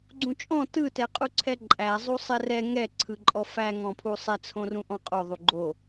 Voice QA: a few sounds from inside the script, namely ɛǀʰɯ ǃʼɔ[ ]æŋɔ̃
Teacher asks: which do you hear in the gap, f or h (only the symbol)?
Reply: f